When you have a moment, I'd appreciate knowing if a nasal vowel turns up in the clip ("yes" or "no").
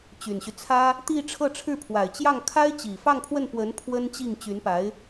no